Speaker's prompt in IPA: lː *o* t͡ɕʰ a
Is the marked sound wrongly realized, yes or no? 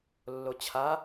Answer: no